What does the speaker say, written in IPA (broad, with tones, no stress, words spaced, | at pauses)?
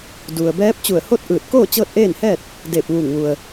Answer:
du˩ə̯bɛː˧˥p̚ t͡ɕu˧˩ə̯ho˥˨t̚ʔɯː˧˩t̚ koː˥˨ t͡ɕɤː˥˨t̚ʔeː˥˨nhɛː˥˨t̚ | deː˧˩p̚ʋuː˧˩ŋʋu˩ə̯